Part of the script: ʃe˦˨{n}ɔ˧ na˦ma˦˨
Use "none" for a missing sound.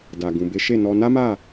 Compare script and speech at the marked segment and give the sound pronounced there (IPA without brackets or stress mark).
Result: n